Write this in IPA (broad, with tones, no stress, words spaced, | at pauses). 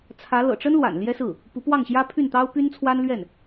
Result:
t͡sʰä˧˥ lɤ̰˨˩ʈ͡ʂə˥n lwa̰˨˩n ljɛ˥sɹ̩˥˩ | pu˧˥pwɑ˥˩ŋ ɕjä˥pʰy˥˩nt̪ɑ˥ʊ̯ py˥nt͡sʰwa˥nlɥɛ˥˩n